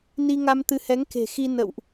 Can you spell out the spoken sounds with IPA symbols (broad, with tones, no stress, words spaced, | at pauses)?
ni˧ŋa˧mt̪ɨ˨˦hɛ˨˦ŋ ke̤˨˩xi˧ nə̰˧˨wʔ